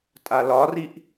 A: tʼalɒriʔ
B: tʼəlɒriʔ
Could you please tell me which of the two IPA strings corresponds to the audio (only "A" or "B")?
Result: A